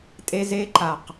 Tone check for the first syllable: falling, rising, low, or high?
high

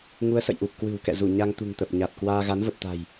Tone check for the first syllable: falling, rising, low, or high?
rising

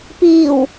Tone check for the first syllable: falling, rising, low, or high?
low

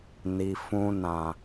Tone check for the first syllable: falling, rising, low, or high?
low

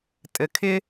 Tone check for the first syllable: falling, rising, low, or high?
low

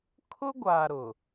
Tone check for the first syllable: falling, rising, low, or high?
high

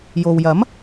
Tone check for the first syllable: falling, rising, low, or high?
low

